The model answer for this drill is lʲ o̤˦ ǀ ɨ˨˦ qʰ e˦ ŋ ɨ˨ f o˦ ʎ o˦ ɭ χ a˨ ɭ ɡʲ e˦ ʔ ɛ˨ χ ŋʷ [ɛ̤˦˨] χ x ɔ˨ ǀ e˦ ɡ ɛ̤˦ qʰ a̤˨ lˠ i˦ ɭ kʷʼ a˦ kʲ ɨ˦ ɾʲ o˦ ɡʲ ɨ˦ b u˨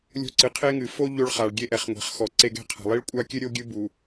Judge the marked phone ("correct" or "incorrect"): incorrect